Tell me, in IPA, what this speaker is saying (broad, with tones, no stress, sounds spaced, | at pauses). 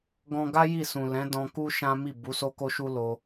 ɡ ɔ̃˧ ɡ a˦ j i˦˨ s ũ˨ l ɛ̃˨˦ d ɔ̃˧ k u˦ ʃ ã˦ m i˦˨ b u˨˦ s o˦ k o˦ ʃ u˦ l o˧